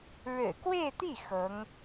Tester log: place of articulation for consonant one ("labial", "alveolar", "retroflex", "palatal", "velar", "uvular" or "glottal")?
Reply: retroflex